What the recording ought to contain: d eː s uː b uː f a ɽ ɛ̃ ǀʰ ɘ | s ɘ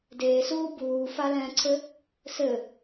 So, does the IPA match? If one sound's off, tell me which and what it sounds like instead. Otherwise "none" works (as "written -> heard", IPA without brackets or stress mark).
ɽ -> l